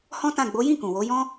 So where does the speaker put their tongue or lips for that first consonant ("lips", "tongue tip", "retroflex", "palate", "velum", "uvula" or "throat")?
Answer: throat